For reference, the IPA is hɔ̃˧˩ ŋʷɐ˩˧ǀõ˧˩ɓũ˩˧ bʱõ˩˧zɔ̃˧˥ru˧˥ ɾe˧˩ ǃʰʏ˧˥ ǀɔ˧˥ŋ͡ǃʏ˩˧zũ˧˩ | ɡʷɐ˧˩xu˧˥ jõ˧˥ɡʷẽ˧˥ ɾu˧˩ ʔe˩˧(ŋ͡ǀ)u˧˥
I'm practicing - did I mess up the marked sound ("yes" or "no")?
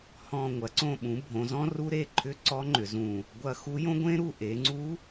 no